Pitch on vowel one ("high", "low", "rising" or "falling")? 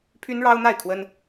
high